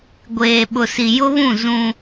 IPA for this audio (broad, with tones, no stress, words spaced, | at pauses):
ɡʷeː˨ɓʊ˨si˨ jʊ˦βũ˦˨ zũ˦